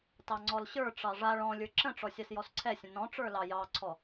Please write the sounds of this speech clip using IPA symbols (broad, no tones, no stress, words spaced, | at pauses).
tɑŋ͡ǀɔlɕə˞ʈ͡ʂɑ ʐa ɭɔ̃ lʲə˞ǁə̃ʈ͡ʂɔ sʲasjɔsǀʰɛsʲə̃ nɔ̃ʈ͡ʂə˞ lɑjɑǀʰɔ